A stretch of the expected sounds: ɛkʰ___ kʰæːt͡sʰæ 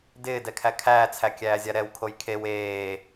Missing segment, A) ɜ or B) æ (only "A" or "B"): B